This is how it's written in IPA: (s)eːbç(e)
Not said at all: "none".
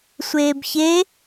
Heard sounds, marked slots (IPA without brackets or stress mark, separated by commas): sʷ, e